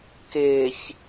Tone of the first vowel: low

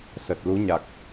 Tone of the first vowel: low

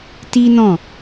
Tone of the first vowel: high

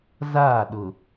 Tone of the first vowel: falling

